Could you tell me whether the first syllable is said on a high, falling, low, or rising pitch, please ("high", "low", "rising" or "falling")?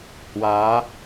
rising